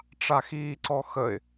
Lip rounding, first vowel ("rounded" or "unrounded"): unrounded